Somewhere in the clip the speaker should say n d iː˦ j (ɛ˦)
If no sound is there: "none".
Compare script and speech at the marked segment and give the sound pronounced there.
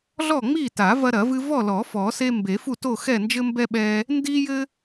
ɘ˦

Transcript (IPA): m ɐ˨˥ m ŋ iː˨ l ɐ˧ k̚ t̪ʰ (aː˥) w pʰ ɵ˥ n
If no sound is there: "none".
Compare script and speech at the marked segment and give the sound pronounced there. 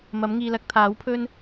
aː˨˥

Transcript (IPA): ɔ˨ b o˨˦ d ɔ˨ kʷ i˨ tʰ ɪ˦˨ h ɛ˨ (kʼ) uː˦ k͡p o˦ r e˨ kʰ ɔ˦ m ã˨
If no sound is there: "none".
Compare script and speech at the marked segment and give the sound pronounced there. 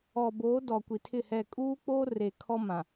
kʼ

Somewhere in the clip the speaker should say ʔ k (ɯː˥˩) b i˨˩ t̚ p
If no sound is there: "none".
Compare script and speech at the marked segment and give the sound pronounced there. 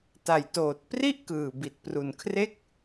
ɯː˨˩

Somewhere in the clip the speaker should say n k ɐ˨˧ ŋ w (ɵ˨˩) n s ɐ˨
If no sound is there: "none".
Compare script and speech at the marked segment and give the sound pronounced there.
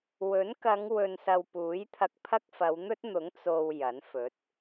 ɵ˨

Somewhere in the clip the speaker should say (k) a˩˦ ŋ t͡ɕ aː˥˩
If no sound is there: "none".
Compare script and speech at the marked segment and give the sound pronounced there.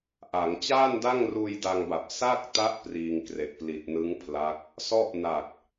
ʔ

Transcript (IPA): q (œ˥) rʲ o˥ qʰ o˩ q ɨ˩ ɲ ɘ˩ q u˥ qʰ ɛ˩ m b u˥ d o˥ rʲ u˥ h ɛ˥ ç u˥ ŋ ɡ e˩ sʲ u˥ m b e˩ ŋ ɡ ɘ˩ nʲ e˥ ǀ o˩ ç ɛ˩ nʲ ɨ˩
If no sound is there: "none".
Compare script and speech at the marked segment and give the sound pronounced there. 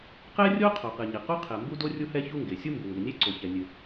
ɛ˥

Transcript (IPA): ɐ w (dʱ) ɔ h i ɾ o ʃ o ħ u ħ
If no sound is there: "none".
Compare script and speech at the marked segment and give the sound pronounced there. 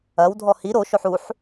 dʱ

